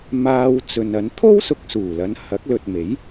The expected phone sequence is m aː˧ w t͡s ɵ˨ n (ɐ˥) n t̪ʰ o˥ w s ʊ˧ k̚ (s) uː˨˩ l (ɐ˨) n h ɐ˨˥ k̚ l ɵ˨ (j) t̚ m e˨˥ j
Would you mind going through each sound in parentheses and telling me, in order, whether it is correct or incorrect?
incorrect: ɐ˨˥, correct, incorrect: ɐ˨˧, incorrect: none

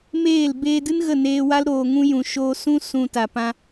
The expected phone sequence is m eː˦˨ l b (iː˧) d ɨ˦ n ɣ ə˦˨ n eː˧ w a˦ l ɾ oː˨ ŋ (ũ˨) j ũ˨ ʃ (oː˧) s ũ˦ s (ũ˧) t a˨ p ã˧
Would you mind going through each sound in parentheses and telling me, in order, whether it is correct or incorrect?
incorrect: eː˧, incorrect: ũ˧, correct, correct

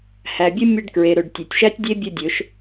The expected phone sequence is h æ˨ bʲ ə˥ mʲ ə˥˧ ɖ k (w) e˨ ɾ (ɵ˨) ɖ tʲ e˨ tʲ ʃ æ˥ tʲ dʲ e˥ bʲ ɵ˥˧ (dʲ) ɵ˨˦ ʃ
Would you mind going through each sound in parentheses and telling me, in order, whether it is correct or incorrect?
incorrect: ɹ, correct, correct

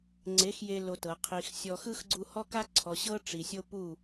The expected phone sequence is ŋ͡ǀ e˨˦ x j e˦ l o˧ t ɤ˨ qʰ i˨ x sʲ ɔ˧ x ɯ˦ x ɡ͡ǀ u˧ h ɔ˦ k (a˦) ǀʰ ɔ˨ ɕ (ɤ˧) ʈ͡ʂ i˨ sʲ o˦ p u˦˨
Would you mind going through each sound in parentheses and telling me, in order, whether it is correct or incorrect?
correct, incorrect: ɤ˦

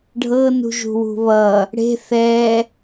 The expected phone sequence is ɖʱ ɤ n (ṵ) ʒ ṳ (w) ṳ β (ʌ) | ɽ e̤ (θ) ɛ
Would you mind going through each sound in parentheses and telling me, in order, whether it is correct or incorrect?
incorrect: ṳ, correct, correct, correct

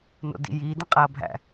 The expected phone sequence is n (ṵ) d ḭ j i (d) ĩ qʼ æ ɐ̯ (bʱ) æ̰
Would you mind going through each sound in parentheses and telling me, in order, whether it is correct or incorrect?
incorrect: o̰, correct, correct

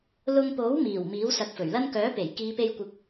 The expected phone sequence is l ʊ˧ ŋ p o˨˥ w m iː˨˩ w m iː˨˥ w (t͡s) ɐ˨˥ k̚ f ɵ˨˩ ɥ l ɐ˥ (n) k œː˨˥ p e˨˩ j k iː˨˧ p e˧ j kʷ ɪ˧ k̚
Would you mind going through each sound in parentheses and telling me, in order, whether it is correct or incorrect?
incorrect: s, correct

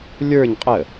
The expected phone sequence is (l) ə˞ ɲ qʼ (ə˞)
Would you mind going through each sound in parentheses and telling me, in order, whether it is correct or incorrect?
incorrect: lʲ, incorrect: ə

